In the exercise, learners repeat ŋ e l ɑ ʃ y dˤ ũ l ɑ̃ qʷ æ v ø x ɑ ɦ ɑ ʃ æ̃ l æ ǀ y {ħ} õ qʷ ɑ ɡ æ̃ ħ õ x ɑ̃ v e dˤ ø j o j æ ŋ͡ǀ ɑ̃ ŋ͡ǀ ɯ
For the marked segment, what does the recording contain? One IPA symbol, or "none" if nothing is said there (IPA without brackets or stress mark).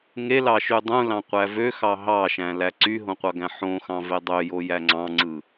ɦ